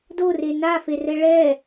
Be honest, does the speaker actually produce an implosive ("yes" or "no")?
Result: no